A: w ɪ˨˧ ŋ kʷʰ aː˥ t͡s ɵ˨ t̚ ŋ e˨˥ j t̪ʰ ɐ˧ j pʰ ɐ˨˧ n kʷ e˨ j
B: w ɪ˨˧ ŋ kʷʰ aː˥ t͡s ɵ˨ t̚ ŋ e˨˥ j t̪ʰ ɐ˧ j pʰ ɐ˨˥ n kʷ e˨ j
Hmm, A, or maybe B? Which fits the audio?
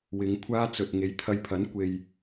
B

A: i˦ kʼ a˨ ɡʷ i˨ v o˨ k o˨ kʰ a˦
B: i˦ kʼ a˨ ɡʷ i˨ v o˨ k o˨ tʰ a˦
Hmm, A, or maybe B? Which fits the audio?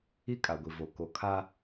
A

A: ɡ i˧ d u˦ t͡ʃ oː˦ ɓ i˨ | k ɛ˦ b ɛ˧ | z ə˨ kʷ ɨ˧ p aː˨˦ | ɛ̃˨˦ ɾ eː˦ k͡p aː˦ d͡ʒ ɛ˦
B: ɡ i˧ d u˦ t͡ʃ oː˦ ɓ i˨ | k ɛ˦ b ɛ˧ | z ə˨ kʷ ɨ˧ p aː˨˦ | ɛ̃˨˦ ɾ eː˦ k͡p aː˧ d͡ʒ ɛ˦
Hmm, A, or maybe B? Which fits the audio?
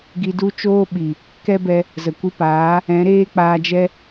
B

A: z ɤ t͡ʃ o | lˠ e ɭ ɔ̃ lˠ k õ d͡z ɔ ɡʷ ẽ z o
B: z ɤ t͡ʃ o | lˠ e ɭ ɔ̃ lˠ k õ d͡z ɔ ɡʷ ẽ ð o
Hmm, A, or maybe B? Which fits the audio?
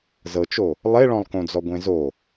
A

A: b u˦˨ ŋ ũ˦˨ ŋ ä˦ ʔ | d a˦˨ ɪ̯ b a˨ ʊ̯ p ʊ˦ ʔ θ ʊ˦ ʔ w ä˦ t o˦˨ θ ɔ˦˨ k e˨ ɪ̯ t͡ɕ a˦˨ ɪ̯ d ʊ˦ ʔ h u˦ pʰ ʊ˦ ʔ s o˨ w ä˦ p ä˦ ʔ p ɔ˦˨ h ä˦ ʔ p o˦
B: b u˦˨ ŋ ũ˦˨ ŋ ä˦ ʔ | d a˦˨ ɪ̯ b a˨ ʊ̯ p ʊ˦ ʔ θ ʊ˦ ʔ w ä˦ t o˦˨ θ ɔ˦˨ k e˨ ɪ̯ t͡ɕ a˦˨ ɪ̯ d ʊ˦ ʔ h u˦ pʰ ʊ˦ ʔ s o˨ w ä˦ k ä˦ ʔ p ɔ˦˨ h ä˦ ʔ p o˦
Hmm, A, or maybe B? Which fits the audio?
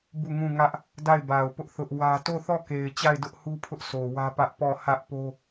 A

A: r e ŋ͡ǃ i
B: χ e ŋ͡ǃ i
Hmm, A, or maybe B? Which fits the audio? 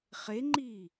B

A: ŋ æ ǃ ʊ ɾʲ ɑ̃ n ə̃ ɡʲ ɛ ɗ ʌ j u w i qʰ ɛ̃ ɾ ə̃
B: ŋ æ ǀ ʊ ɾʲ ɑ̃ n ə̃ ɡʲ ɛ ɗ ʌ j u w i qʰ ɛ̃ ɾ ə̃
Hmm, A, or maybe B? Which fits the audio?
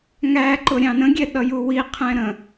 A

